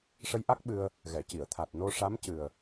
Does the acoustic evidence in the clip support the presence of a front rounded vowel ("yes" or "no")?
no